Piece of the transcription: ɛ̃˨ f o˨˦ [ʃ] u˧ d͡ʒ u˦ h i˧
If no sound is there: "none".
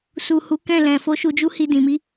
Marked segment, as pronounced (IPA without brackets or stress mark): ʃ